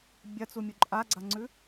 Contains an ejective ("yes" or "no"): yes